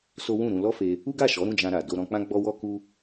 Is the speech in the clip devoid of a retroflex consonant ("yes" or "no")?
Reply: yes